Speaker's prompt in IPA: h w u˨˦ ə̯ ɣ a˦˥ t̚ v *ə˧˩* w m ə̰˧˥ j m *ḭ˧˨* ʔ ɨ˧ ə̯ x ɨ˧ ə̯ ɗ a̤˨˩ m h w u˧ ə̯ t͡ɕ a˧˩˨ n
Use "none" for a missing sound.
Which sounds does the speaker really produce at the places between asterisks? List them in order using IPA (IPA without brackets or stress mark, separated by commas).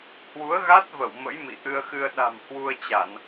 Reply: ə˧˩, ḭ˧˨